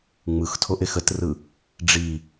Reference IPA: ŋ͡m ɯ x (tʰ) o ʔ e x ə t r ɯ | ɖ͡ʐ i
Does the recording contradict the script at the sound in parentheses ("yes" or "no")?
no